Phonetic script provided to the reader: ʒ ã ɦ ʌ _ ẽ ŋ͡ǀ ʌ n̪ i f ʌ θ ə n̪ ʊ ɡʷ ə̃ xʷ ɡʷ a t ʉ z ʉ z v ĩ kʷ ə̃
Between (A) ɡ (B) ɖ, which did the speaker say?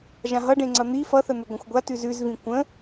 B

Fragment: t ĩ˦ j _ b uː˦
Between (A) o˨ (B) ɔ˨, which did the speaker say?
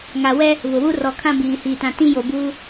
A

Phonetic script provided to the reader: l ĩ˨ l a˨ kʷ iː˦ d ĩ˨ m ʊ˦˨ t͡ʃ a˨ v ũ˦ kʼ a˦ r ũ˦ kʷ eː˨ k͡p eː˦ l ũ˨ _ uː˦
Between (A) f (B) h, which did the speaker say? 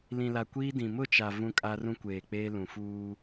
A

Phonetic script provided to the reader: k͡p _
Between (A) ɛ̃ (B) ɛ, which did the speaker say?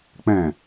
A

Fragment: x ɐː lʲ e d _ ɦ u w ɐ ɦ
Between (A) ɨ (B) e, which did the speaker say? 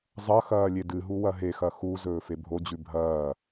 A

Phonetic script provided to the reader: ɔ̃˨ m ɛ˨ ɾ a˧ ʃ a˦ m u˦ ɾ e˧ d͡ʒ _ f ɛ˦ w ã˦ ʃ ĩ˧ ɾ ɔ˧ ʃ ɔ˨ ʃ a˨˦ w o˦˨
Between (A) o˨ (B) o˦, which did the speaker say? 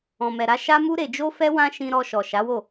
B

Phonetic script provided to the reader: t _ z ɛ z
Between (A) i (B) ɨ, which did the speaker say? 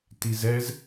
A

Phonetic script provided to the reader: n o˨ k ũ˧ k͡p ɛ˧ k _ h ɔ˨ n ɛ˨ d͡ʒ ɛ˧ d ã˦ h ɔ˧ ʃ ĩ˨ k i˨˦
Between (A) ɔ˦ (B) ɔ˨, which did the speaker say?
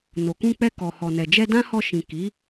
B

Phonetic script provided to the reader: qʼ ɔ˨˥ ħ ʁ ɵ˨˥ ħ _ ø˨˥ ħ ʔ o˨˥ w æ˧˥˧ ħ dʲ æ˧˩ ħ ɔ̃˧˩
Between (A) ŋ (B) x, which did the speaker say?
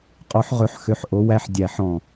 B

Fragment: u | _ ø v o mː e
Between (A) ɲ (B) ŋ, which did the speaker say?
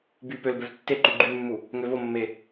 B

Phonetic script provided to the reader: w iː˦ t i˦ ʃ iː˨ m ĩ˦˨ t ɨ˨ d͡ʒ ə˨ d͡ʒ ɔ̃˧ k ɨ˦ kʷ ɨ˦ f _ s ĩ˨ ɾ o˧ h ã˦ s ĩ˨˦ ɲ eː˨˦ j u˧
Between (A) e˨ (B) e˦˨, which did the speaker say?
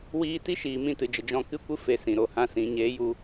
A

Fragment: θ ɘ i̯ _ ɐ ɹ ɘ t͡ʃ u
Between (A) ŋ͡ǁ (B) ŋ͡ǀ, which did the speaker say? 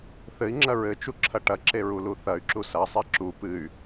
A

